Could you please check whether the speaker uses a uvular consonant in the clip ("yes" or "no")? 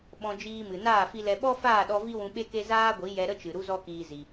no